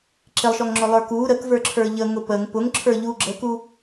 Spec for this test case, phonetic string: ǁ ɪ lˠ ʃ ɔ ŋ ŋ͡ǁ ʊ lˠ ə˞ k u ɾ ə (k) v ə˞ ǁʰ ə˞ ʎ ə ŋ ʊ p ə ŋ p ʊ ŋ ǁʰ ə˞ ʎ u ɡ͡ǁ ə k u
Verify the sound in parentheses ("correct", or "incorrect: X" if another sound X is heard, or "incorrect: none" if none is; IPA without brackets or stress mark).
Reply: correct